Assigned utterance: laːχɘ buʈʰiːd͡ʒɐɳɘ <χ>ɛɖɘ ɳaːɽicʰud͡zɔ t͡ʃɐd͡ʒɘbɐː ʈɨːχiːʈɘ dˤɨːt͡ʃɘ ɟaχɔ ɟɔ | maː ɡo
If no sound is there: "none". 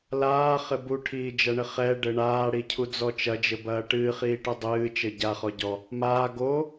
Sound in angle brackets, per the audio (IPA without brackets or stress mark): χ